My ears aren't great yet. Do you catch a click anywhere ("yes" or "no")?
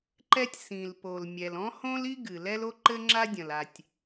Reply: yes